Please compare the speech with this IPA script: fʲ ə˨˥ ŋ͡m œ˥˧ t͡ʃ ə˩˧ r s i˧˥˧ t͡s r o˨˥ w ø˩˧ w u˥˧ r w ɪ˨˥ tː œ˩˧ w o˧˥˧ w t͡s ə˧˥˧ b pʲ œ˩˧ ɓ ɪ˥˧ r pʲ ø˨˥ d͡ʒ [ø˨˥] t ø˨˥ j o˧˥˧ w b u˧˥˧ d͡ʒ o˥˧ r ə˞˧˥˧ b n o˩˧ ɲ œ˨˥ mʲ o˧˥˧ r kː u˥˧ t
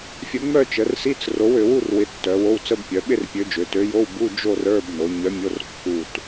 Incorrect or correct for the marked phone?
incorrect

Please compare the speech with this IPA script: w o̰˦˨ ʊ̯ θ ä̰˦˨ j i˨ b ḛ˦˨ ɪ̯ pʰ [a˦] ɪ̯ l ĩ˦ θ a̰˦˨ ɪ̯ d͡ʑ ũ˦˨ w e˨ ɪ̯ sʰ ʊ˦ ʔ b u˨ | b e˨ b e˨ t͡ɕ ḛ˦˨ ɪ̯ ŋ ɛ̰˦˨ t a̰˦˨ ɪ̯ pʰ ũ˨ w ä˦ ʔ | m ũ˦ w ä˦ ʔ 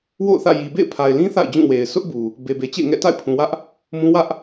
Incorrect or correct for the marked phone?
incorrect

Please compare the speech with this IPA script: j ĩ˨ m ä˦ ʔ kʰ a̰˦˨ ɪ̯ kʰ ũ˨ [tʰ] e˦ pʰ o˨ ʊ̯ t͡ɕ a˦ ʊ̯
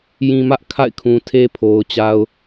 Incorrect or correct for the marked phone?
correct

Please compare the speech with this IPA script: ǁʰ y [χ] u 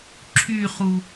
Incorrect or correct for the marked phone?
correct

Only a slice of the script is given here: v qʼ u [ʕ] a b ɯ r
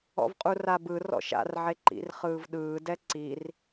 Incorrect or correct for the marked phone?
incorrect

